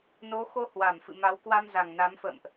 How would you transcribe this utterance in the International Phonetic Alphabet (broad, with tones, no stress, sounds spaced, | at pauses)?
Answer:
n o˨˦ x o˧ h w a˧˩ m f ɨ̰˧˨ m a˨˦ w k w a˧ m z a˨˩ ŋ n a˨˦ m f ə̰ː˧˨ m ʔ